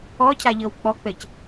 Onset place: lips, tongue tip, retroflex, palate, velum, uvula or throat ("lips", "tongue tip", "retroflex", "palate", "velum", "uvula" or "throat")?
palate